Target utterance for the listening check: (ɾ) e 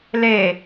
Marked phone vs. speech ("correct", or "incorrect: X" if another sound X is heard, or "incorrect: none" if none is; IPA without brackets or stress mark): incorrect: l